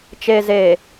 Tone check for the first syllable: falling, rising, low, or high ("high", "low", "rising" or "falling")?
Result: low